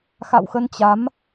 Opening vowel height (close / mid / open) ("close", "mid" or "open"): open